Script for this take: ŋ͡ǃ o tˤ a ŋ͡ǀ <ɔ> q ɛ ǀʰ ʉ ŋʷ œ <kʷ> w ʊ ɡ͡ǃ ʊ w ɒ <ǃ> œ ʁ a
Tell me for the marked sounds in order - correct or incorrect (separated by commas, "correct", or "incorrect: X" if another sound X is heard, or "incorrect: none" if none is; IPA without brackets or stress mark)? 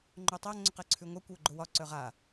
incorrect: ʊ, correct, incorrect: ǀ